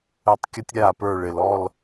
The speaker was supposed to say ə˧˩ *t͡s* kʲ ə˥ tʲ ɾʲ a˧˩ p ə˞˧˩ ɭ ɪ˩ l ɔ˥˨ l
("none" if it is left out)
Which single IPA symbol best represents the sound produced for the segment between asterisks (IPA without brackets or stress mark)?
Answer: tˤ